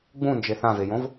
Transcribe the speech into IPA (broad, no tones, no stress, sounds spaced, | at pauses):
ɡ͡b ũ n d͡ʒ e θ ã v e j õ v